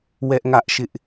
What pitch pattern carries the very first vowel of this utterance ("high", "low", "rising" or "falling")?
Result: high